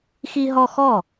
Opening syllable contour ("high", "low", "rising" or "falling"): high